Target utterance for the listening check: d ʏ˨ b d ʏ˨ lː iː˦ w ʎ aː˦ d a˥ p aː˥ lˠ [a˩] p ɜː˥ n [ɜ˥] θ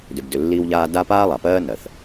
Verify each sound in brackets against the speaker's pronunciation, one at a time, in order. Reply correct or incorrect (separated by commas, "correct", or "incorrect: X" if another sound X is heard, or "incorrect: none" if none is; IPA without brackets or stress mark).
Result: correct, incorrect: ɜ˩